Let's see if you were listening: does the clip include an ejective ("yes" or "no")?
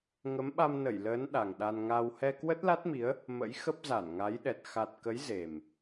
no